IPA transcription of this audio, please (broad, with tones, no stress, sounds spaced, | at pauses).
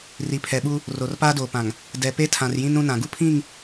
r i˨ pʰ ɛ˨ ɓ u˦ | r o˨ r p aː˦ d oː˨ p ã˨ ŋ | d ɛ˨ p e˦ tʰ ã˨ r j ĩ˦ n ɾ ũ˦ n ã˨ ɡ u˦ pʰ ĩ˦˨ ŋ